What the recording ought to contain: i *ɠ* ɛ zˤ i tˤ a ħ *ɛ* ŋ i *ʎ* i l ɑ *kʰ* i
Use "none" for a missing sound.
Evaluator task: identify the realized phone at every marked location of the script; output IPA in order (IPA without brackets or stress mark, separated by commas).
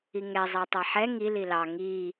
ŋ, ɛ, l, ŋ